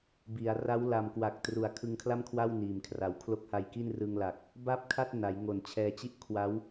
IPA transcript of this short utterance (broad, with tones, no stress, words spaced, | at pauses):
bi˩˦a̯ ra˦˥wla˨˩m kwa˨˩k̚ tru˨˩a̯kʰɯ˧ŋkʰla˥˩mkʰwa˥˩w niː˨˩m kʰra˩˦wkʰlo˦˥k̚ha˧jki˥˩n rɯ˧ŋla˨˩k̚ | ba˥˩p̚kʰa˥˩t̚ na˩˦jŋo˨˩nt͡ɕʰɛː˧ t͡ɕi˥˩ʔ kʰwa˦˥w